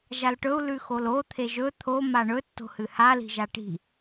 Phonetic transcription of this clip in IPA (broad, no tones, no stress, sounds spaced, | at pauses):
ʒ a l ʈ ɵ u̯ l ʉ x o l o t̪ʰ e ʒ ɵ t̪ʰ o m a ɳ ɵ tː o̤ h ɨ h a l i̤ ʒ a ʈ i̤